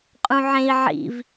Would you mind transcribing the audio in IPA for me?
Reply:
qʼ ũ ʕ ẽ i̯ ʕ ḭ v

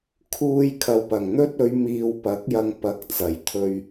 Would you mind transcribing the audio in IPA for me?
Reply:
kʰ uː˧ j kʰ ɐ˨ w p ɐ˨˩ ŋ n̪ ɵ˥ t̚ ɵ˨˧ ɥ m iː˧ w p ɐ˨˥ k̚ j ɐ˧ ŋ p ɐ˨˥ k̚ t͡s ɐ˨˩ j t̪ʰ ɵ˧ ɥ

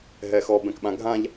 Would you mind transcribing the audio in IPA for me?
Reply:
ɦ ɛ x ɔ b ɛ̃ k ɓ ã ɡʱ ã ʎ

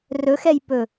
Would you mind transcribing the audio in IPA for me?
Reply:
r ɵ x ɛ j p ɵ

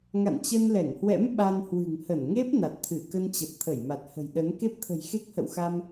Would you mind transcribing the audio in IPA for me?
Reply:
ŋ a̰˧˨ n t͡ɕ ə˧ n l ɛ˧˩ ŋ h w ɛ̰˧˥ m ɓ a˧ n h w ɨ̤˨˩ ŋ h ə˧˩ n ŋ e˦˥ p̚ n a˨˩ t̚ t̪ʰ ɨ˧˩ k ə˧ n t͡ɕ ə˨˩ p̚ t̪ʰ ə˧˩ j m a˨˩ t̚ h ə̤˨˩ j ɗ ə˨˦ n k e˦˥ p̚ t̪ʰ ə̤˨˩ j x e˦˥ k̚ h ə̰˧˨ w x a˧ m

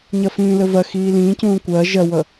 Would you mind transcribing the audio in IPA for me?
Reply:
ɲ ɐ f ĩː l ə v ɐ x iː l ĩː c ũː kʷ ɐː ʒ ɐ w ʌ

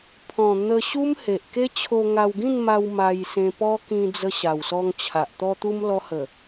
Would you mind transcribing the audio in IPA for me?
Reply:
pʰ ɔ̃˨˩ n̪ ə˧ ɕ u˦ m h e˨ ʔ k e˦ t͡ɕʰ o˧ ŋ a˧ w ɡ ĩ˥˧ n m a˧ w m a˧ j s ẽ˧ p ɔ˦ k ĩ˧ d͡z ə˧ ɕ a˨˩ w s ɔ˧ ŋ t͡ɕʰ a˨ ʔ t̪ ɔ˧ t̪ u˧ m l ɔ˧ h ə˨˩

